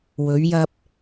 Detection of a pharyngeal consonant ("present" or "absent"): absent